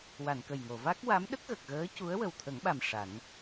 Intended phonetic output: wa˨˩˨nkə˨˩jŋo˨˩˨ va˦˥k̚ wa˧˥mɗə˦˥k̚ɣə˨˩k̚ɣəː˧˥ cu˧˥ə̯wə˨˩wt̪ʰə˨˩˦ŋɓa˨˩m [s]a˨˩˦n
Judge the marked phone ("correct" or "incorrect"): incorrect